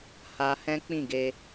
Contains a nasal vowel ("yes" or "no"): yes